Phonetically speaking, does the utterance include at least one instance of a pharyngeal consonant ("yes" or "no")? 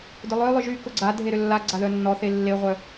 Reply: no